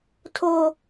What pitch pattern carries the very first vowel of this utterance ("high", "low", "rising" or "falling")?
high